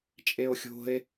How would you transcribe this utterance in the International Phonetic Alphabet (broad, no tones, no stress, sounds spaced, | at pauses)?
t͡ʃʼ e o̯ xʲ o̤ e̯